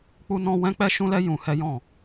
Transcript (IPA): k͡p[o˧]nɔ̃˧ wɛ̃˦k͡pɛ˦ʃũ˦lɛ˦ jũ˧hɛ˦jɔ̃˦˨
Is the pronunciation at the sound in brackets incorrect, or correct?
incorrect